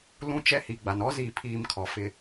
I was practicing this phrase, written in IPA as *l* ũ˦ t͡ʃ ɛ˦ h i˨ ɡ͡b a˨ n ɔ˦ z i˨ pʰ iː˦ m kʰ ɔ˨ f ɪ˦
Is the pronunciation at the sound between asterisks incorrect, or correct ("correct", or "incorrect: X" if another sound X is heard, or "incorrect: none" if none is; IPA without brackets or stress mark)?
correct